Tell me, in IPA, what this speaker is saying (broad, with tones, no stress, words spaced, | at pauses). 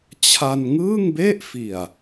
t͡ɕʰa˧nŋɯː˥˩ŋbe˥˩ʔ fi˨˩a̯